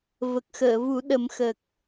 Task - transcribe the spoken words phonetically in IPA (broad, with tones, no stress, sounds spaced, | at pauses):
v ə˨˩ k̚ x əː˨˩˨ v u˨˩˦ ɗ ə˨˩˦ m x ə˨˩ k̚